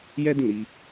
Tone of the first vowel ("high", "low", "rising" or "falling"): high